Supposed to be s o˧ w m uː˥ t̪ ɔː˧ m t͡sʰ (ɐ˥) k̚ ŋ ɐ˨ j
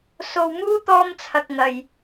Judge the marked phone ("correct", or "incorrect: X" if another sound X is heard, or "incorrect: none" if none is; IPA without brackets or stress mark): incorrect: ɐ˨